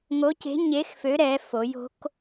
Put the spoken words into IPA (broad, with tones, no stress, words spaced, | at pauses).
ŋo˧˥ce̤˧˥ɲe˧˥xfø˧˥ ɾɛ˧˥fo˧˥j o̤˧˥k